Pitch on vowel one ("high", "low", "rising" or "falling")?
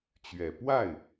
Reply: low